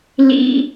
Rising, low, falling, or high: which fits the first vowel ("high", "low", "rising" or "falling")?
high